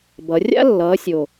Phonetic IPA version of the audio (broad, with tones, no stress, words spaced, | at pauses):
bʌ˨˦ rʲa̰˥ lːʌː˨˦sʲo˨˩